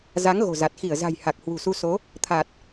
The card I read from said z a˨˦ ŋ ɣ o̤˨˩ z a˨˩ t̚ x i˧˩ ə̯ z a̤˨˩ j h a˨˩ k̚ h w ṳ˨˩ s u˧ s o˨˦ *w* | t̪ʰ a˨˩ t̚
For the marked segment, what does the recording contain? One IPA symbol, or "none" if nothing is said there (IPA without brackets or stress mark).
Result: none